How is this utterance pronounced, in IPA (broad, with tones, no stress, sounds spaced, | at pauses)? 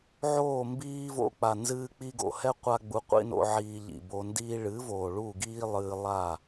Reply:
ʕ oː˦˨ m b iː˦ v o̰˧ k͡p a˨ n z ɨː˧ k͡p i˧ ɡ o̰˨ h ɛ˦ qʷ a˦ ɡ͡b u˧ qʷ ḭ˦ n o̰˧ ʕ iː˧ ʎ ḭ˨ b o˧ n d iː˧ ɭ ɨ˨˦ v oː˨ ɭ u˦˨ ɡ iː˦ lˠ ɨː˧ lˠ a˦˨